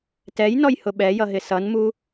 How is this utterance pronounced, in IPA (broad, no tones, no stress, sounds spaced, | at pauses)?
t ɛ j n ɔ j h ʊ ɓ ɛ j ʌ ɦ ɪ s ʌ n m u